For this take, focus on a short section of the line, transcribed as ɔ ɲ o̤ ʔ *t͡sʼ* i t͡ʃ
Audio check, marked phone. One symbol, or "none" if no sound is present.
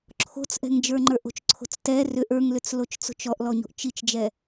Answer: t͡ʃ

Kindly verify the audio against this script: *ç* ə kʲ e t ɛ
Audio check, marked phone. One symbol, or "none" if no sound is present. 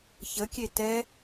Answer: ç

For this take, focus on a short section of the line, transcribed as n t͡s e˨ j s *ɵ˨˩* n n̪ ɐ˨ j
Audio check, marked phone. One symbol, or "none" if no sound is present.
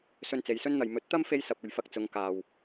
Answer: ɵ˥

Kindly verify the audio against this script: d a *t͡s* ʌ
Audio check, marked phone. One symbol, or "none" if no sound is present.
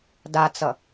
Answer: t͡s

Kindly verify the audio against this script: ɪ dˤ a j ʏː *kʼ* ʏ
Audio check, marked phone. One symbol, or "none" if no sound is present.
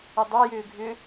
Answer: ɡʱ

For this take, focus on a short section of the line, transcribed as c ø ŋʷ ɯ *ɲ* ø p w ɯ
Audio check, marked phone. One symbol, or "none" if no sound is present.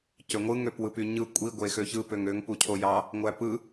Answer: ŋ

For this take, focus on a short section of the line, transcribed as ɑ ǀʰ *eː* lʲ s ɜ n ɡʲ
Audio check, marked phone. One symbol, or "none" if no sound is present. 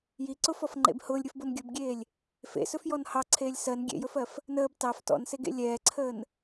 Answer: eː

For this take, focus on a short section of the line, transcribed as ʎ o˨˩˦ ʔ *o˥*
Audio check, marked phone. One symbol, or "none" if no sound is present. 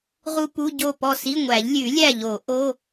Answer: o˧˥˧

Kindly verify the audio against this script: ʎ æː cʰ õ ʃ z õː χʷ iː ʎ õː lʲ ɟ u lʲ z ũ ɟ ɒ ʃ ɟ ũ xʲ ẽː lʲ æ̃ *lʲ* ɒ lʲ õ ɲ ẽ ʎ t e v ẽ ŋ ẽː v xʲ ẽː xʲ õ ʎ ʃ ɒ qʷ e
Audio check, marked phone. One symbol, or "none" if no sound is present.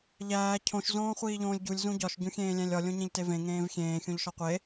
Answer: lʲ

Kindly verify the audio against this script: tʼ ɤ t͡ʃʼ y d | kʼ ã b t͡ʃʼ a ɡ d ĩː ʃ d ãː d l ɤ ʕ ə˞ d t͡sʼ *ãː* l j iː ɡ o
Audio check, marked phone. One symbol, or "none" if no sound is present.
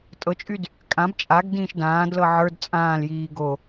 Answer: ãː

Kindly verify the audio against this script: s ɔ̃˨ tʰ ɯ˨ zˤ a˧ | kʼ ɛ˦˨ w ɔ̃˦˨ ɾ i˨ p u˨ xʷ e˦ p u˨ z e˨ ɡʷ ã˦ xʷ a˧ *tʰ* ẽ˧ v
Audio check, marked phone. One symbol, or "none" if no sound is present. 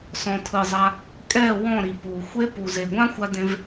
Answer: d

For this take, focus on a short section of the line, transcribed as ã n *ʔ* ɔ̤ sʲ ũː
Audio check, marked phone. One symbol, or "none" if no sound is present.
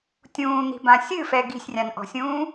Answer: ʔ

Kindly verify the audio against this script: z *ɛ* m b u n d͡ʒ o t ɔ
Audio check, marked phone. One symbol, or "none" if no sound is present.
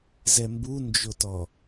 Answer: ɛ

